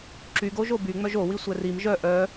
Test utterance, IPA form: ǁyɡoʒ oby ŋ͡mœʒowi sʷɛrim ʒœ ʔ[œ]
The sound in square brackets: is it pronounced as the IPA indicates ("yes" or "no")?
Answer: yes